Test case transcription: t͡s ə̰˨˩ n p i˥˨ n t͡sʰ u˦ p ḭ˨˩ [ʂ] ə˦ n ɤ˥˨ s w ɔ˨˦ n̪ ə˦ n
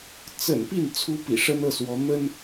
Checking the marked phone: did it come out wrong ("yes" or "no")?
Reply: no